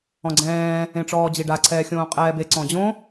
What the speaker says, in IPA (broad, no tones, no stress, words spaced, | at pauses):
ɔ̃ɡ͡ǀɛ̃ː | ẽʈ͡ʂɔːd͡ʑiɖa ǀʰɛːxʲõːqʼɛːbe ǀɔ̃d͡ʑõ